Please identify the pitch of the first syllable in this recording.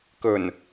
low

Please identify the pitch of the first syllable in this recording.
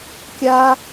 high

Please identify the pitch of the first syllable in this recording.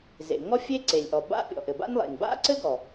low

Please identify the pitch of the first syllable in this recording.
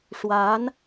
rising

